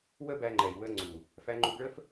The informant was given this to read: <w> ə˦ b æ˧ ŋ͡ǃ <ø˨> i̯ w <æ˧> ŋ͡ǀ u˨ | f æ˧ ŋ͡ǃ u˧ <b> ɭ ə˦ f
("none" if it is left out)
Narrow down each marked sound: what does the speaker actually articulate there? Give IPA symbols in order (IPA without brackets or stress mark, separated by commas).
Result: w, ɛ˨, ə˧, b